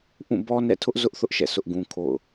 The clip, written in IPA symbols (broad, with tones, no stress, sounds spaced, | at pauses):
ʔ ũ˦˨ b ɔ˦ n ɛ̰˦˨ tʰ ʊ˦ ʔ z ʊ˦ ʔ θ ʊ˦ ʔ ʃ ɛ̰˦˨ s ʊ˦ ʔ ɡ ũ˦ kʰ o̰˦˨ ʊ̯